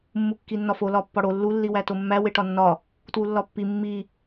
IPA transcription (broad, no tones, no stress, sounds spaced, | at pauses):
mː u kː i nː ɒ f o l ɒ pː ɒ ɽ o lː u lː i w æ t o mː æ w e ʈ ɒ nː ɒ | t w u lː ɒ pː i mː i